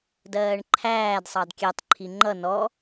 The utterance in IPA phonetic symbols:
dɜːɳǃʰæːd sˤɑdkʲɛtˤ ǃʰiŋ͡ǃʌ nɔ

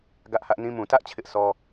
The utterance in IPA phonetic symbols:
ɡä˦ʔhä˦ʔnĩ˦ mũ˨tä˦ʔ t͡ɕʰɪ˦ʔsʰɔ˦

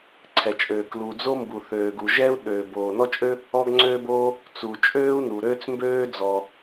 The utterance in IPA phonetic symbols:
ǀʰɛ˩t͡ʃʼøː˩ klu˩d͡zo˥ mbu˩θøː˩ɡu˩ ʒɛː˥u̯ɗøː˩boː˩ nɔ˥t͡ʃʼø˥ | ɔ˥ɡŋ͡ǀøː˥boː˥ | t͡su˩t͡ʃʼøː˥u̯ nu˩ɾøː˥t͡smbøː˥ d͡zɔ˩

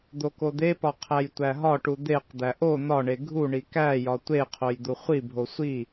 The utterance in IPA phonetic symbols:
d̪okod̪epɒ qʰæjtʷæɦɒʈu d̪eqd̪æ ʔo n̪ɒɳe ɡʱuɳi kæjɒ tʷeqʰoj d̪uχʷibʱo sʷi

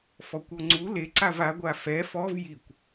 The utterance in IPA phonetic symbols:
fɔkʷɔŋ͡ǀu leǀav aɡʷa fɛ fɔv jikʷ

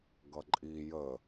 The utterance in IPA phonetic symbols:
ɡʌǃʼi jə

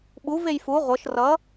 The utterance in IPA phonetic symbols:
ɓu vejfu ʁʷɤʃ rʌ

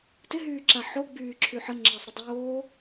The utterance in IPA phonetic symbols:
tɪɦyːǁa ħoɡ͡byːǁʰy ħəŋ͡ǁəːsˤɾɪ dˤoː

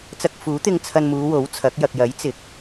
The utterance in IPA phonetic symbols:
t͡sɐ˧k̚fuː˨˥t̪ɪ˧ŋ t͡sʰɐ˧nmuː˨˧ wo˨˥wt͡sʰɐ˨˥k̚ jɐ˨k̚jɐ˨˥jt͡sɪ˨˥k̚

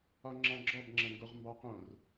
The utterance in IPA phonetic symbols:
ɒŋ͡ǁɑ̃ɡ͡ǁɔb ŋ͡ǁɐ̃ŋɡoʁmbɑqõr

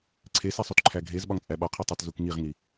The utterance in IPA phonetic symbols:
ǀʰesisˤut ǃʰæɡʱez ɓɒŋt͡sʼæɓɒqʰu tˤetzukŋiʁŋi

